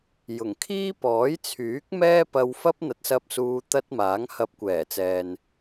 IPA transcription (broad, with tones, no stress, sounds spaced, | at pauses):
j ʊ˨˩ ŋ kʰ iː˥ p ɔː˨˥ j t͡sʰ yː˨˥ k̚ m ɛː˥ p ɐ˧ w f ɐ˥ p̚ n̪ ɐ˨˥ t̚ s ɐ˧ p̚ s uː˧ t̪ ɐ˥ t̚ m aː˨˥ ŋ h ɐ˧ p̚ kʷ ɛː˨˩ t͡s ɛː˨ n